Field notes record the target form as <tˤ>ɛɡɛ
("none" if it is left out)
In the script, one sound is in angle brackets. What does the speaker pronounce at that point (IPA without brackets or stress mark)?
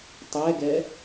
tˤ